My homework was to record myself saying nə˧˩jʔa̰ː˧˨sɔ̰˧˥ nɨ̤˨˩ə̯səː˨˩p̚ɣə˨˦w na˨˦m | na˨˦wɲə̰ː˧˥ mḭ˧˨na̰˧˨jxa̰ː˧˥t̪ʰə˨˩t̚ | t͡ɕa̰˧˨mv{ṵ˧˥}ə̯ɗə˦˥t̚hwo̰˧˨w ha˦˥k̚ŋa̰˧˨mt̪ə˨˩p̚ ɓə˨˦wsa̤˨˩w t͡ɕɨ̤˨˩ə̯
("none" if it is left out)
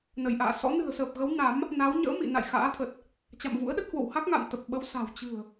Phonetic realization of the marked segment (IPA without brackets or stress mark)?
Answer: ṵ˧˥